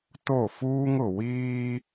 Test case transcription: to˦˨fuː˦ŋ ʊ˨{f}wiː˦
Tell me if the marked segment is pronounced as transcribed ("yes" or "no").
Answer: no